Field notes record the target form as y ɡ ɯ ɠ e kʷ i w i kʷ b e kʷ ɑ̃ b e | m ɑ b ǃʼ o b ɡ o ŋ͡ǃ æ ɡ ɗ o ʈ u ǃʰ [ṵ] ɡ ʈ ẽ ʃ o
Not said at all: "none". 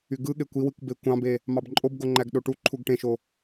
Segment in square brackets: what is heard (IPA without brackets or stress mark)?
u